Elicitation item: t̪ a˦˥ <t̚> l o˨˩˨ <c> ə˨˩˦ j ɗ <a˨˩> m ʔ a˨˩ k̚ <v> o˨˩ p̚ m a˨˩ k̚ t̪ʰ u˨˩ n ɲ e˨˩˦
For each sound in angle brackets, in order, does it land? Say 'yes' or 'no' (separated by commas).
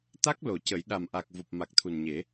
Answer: no, yes, yes, yes